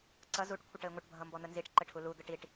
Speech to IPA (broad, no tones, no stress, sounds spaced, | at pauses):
ǀ ʌ z u ʈ kʷʰ ə ʈ ə ɪ̯ ŋʷ ʌ ʈ bʱ ʌ m b ɔ n̪ ə n z i ʈ ǃ ə ʈʰ u l u d̪ ə ʈ i ʈ